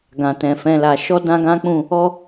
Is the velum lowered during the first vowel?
yes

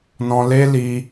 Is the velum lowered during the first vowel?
yes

